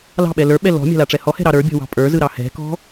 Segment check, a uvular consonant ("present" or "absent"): absent